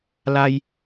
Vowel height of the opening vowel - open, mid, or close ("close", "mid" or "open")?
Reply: open